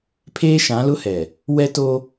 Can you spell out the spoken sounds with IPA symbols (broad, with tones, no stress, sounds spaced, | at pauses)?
pʰ eː˦ ʃ ã˨˦ l ʊ˦ h ɛ˨ | w ɛ˦ t o˦